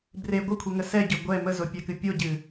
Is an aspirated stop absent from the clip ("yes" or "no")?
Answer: no